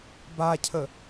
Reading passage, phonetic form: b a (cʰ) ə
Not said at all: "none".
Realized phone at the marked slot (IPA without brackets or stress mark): cʰ